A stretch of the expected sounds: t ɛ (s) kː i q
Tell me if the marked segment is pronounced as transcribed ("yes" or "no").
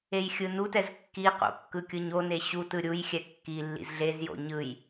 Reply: no